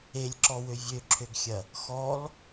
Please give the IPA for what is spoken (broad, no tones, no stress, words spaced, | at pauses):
elʲǁɔwø vʲøǁʰøɡxʲɐ | xɔl